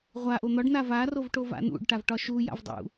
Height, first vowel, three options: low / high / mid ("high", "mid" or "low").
low